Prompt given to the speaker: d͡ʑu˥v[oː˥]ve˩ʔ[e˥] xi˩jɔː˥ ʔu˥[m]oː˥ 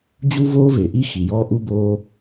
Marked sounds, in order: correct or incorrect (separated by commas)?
correct, incorrect, incorrect